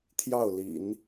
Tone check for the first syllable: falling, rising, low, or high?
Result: falling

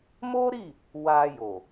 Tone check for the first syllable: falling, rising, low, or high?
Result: high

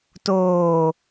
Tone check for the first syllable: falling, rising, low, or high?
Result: low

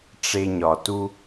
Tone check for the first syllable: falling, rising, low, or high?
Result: high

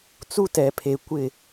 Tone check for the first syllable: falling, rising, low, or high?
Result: high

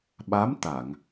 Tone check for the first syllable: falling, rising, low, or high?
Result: rising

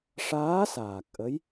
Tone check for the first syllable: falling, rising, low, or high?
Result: rising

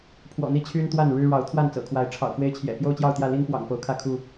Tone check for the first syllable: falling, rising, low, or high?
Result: low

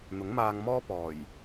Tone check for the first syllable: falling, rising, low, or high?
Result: rising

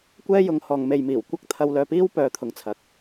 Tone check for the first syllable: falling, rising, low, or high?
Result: high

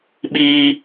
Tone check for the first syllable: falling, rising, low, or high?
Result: high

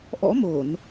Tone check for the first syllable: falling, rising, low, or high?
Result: rising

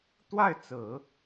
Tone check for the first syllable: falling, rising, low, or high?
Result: falling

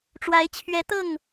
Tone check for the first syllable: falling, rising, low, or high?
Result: rising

